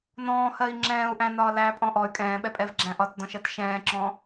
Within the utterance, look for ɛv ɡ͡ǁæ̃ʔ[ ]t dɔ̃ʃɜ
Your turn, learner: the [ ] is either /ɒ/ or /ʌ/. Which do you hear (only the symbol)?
ɒ